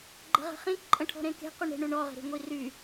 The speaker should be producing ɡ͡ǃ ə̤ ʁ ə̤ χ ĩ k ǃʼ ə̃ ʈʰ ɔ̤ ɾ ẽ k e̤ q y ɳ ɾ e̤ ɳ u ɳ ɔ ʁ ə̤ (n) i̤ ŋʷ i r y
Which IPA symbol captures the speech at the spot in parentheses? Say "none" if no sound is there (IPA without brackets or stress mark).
ɾ